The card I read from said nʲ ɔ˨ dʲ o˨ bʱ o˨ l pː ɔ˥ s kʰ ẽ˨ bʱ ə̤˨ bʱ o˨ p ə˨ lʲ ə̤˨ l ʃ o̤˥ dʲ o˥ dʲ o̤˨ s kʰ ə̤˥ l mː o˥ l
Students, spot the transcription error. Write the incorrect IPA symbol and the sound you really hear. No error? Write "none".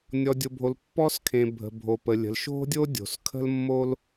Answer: none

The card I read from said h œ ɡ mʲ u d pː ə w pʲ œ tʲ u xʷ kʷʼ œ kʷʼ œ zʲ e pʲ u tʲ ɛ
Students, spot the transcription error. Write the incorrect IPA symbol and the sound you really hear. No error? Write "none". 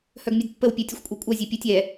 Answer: none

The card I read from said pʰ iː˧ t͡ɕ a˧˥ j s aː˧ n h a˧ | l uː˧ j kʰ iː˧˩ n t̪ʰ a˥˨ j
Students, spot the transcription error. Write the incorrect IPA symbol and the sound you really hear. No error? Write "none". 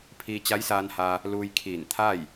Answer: none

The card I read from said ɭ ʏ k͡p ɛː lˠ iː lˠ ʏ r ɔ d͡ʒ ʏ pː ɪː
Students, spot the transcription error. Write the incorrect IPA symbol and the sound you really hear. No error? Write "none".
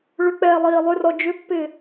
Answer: none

